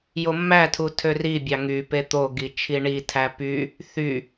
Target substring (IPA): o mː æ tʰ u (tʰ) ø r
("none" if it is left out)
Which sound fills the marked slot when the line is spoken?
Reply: tʰ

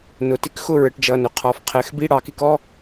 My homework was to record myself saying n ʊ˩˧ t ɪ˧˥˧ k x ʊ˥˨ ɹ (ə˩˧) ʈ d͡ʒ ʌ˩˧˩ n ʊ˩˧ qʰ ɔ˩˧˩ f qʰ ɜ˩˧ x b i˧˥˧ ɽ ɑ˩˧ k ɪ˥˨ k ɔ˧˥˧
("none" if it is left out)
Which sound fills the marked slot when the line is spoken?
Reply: ə˩˧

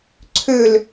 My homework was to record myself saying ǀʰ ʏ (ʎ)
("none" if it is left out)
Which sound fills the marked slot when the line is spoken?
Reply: l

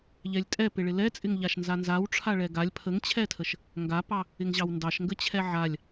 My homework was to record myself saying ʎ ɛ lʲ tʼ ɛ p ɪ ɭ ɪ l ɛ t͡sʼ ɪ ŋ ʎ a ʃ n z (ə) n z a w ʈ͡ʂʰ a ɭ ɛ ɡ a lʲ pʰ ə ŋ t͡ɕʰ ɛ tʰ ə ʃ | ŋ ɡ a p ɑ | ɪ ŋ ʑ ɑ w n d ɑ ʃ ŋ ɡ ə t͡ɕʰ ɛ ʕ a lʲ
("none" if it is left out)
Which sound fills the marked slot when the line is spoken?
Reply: a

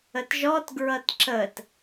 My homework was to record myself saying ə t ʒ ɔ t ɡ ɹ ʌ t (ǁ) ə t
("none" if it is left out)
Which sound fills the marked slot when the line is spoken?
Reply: ǁ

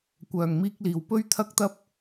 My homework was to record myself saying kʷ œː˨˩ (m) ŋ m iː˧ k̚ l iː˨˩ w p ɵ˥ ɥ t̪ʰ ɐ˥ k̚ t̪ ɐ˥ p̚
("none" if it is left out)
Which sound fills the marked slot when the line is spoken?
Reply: none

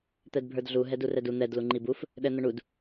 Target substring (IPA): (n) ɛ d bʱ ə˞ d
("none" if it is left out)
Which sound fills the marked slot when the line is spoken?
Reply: t̪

